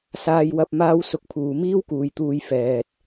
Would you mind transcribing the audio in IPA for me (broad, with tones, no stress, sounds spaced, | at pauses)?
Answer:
s aː˧ j w ɐ˧ p̚ m aː˥ w s ʊ˧ k̚ pʰ uː˨ m iː˥ w k uː˨ j t̪ uː˧ j f ɛː˨ t̚